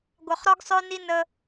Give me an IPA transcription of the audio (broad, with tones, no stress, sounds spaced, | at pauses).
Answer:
ɡʷ œ˨ χ ɾ ɔ˦ ɡ sˤ œ˦ n i˦ n ə˦